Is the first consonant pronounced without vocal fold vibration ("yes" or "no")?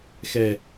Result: yes